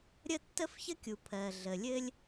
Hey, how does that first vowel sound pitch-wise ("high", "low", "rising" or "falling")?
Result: high